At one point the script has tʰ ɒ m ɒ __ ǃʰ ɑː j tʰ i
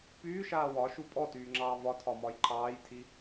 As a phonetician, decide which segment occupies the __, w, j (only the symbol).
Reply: j